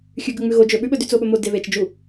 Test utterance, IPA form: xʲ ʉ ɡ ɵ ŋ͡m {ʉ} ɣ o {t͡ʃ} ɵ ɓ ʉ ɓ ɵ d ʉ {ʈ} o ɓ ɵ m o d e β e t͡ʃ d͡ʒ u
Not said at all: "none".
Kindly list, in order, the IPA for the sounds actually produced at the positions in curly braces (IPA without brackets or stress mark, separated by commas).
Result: ʉ, d͡ʒ, t͡s